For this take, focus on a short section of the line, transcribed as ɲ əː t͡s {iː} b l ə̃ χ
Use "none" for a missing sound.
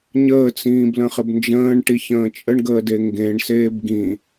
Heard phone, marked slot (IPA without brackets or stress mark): ĩː